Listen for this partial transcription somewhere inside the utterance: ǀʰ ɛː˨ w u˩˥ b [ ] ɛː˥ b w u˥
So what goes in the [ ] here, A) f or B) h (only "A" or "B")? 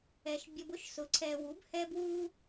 B